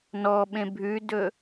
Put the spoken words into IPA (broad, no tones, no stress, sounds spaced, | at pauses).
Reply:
n ɔ ɓ ẽ bʱ ʉ d ɵ